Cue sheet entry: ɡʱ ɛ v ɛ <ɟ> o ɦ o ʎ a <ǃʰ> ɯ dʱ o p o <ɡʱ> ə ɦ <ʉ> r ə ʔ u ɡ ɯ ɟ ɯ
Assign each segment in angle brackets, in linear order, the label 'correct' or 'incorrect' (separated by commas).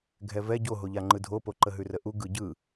correct, incorrect, incorrect, correct